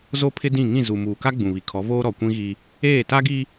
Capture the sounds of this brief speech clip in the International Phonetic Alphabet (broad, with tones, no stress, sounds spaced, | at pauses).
z o˦ pʰ ɪ˦ d ĩ˦˨ ŋ ĩ˦˨ z u˨ m uː˨ k a˦ ɡ͡b ũ˨ β i˨ kʰ ɔ˨˦ v oː˦ ɾ ɔ˨ kʷ ĩ˦ ɣ i˦ | eː˦˨ t a˦ ɡ i˦